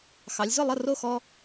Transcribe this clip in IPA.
xɑ˩˧lʲzʊ˥˩lˠə˥˩ ro˥˩xɔ˦

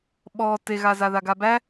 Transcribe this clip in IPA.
ɓɔ teɣazaða ɡabæ

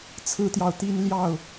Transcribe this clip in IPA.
t͡sʰɹ̩˦t̪jɑ˨ʊ̯ t̪i˦nljɑ˥˨ʊ̯

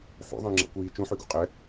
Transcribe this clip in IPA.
ħṵ ðˤə̃jŋ͡ǁa̰kʷiː t͡ʃũħyɡṵ qʼɛ

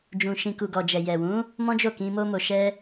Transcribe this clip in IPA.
d͡ʒũ˨ʃĩ˨ku˨ɡɔ˨ d͡ʒɛ˨jɛ˨wũ˨˦ | mɔ̃˦d͡ʒo˦˨kĩ˧ mo˧mo˨ʃɛ˧

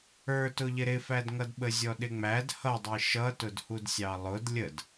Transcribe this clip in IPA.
ə˞tʊʎɪ ɾɪfædŋʌdɓə zʲɔɗɪŋ͡mæd hʌdˤi ʃʌtʊdhudsʲɑ lˠʊd lʲəd

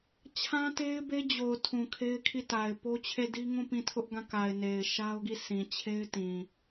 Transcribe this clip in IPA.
t͡ɕʰã˦te˦ɪ̯be˦d͡ʑo˨ʊ̯ tʰũ˨kʰe˦ɪ̯kʰi˦˨ta˨ɪ̯ po˦t͡ɕʰe˦˨di˦ŋũ˦˨ pĩ˦˨tʰʊ˦ʔɡã˦˨ka˨ɪ̯ ne˨ɪ̯ʃa˦ʊ̯ɡi˦˨sĩ˨ t͡ɕʰe˦ɪ̯ tĩ˨

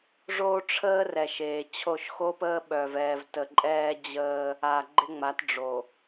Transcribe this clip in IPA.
ʐoː˦ʈ͡ʂʰəː˦r ɛ˨ʃeː˨t͡ɕʰo˦˨ʃ xoː˦pəː˦ɓœː˨v ɛː˨vtə˨ǃʼɛː˦ d͡ʑəː˦ | aː˨ɡ͡ǃɪ˦ŋ͡ma˨˦t ɖ͡ʐo˨

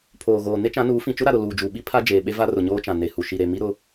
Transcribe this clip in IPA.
pʰoː˨ɣoː˨ ne˦t͡ʃã˨˦nuː˨˦ fĩ˨t͡ʃʊ˦ ɾa˨ɾʊ˨ luː˨d͡ʒuː˨ɓi˦ pʰa˦ d͡ʒeː˨ɓe˦ va˦rʊ˨ɲoː˦t͡ʃã˨ ne˨hu˨ ʃi˨ɾe˨mi˦ ɾʊ˦

